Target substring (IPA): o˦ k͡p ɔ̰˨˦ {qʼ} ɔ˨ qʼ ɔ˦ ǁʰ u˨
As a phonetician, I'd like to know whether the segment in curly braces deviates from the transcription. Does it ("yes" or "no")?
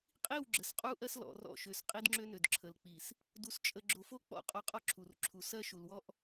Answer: no